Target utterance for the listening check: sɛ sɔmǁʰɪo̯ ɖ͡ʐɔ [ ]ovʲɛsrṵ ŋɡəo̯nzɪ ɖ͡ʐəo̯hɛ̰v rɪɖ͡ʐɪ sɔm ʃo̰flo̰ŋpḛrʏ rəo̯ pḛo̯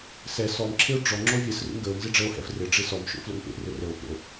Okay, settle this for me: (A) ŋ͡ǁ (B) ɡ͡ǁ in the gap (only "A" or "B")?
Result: A